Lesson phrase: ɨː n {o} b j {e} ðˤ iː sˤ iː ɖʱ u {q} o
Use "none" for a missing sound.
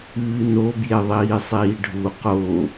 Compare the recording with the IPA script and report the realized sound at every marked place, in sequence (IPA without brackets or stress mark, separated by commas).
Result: o, e, q